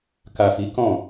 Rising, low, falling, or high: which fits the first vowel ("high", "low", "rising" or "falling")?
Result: low